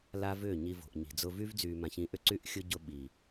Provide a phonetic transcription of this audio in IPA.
la˦vʏː˦˨ɲi˧ vo̤˨ʔɲi̤˨d͡zʊ˧vy˦v d͡zyː˨mã˨çĩ˨˦ʔʏ˧ ǀy˦ʔ xʲʊ˦ ɟʊ˧ɓi˨

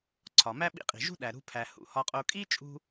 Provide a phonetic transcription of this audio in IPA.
ǀʰɒ˩mæ˥ɓḭ˧qʼi̤˩ ʒṳ˥ɗæ˩ɾṳ˧pʰæ˩ hṵ˩hɒ˧qʼo˧ kʼi˥t͡ʃʼṳ˧

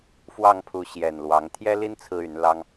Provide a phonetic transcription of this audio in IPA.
fwɑ˥˨ŋpʰu˨˦ ɕjɛ˨˩nlwɑ˨˦ŋ t̪ʰjɛ˦li˦n t͡sʰɹ̩˦y˨˦nlɑ˦ŋ

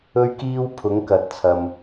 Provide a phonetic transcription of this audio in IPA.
ɵ˥ɥkiː˥wpʰʊ˨˥ŋ kɐ˨˥t̚t͡sʰɐ˧m

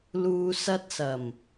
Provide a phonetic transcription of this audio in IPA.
luː˨ sɐ˧t̚sɐ˨˩m

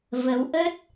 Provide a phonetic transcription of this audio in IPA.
və˨˦wʔə˦˥t̚

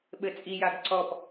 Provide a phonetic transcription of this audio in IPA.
ɓɘt͡sʼijaɡ ǀɔp

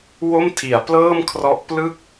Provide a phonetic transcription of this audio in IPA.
wo˥˩mtʰi˩˦a̯plɤː˥˩mkʰrɔ˦˥ʔ plɯ˦˥k̚

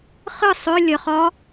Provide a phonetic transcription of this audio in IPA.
χɨ sˤʏ lʲə χɒ

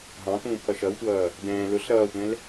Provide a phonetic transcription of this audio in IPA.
ɦɑ̃t̪ũːpʰʌ ʃʌwtʷʌː | dɛ̃ː lʊɬ ɾʌːtʷɛ̃l

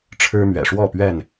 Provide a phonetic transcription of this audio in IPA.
ʈ͡ʂʰɻ̩˦mɥɛ̰˨˩ʂwɔ˥˨ pɥɛ˥˨n

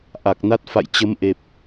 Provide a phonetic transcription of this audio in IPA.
ʔa˨˩k̚na˦˥t̚ fa̰˧˨jt͡ɕə˨˦mʔe˨˩p̚

